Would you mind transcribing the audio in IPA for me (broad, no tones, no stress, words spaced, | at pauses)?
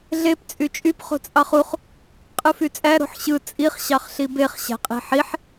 ɮep t͡sʼyt͡ʃʼyp χo̤t͡sʼɑχuχ | qʼɯfyt͡sʼæ ɾo̤ħɕɯ t͡sʼiχ ɕɑχɬibeχ ɕæ̤qʼi̤ħiħ